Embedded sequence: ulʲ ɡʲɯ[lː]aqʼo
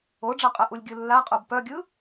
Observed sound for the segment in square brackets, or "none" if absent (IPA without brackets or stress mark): lː